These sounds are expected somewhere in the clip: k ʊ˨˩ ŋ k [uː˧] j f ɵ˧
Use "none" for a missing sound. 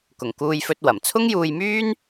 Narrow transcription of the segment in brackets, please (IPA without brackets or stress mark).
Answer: uː˧